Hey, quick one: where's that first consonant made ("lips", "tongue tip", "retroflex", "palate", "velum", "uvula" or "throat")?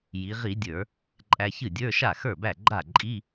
palate